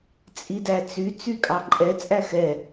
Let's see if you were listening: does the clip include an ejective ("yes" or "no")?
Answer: yes